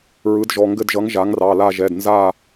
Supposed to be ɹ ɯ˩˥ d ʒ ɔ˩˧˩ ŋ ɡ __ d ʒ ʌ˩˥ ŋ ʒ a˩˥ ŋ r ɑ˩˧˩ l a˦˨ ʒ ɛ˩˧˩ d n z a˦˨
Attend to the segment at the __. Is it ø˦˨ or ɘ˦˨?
ɘ˦˨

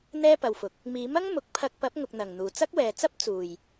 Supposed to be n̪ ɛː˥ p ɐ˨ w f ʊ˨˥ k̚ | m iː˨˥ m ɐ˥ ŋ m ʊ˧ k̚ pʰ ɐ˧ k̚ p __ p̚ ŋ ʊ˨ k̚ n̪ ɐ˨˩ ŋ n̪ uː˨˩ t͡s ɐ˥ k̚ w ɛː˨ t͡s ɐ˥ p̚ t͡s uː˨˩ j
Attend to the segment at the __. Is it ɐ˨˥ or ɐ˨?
ɐ˨˥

